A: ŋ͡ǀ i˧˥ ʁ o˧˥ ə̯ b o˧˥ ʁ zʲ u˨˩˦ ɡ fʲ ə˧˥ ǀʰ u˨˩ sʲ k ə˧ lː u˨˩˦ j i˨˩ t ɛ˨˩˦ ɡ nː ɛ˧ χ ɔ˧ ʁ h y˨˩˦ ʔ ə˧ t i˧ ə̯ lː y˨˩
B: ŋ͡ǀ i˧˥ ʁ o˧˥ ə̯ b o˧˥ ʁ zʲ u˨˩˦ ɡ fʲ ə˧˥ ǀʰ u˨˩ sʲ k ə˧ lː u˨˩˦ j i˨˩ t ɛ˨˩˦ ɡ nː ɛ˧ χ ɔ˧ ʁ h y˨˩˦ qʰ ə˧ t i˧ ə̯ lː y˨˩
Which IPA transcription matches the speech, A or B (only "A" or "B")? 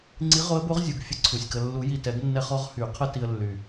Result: B